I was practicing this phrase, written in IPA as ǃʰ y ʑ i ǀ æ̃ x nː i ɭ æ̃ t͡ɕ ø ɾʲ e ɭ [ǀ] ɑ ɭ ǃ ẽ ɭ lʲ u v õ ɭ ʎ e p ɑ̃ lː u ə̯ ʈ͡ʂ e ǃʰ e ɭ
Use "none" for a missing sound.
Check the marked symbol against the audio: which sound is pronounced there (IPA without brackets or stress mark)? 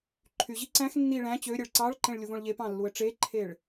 ǀ